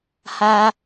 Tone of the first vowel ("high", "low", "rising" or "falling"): high